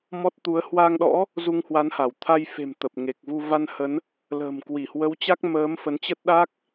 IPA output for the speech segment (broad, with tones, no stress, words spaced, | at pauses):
mɔ˦˥t̚t̪u˨˦ə̯ hwa˧ŋɗɔ̰˧˥ | zu˧ŋhwa˨˦nha˧˩w t̪ʰa˧jfe̤˨˩m t̪ə˨˩p̚ŋe˨˩k̚vu˧ va˧nhə˨˦n | lə̤ː˨˩mkwi˧˩hwə˨˦wt͡ɕa˦˥k̚ məː˨˦m fə˨˦nt͡ɕə˦˥t̚ɗa˦˥k̚